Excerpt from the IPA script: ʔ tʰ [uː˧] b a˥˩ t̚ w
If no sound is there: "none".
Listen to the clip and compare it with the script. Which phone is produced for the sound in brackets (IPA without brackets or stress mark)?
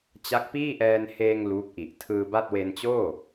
ɯː˧